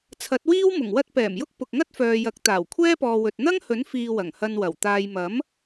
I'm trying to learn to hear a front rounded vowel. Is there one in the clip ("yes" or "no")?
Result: yes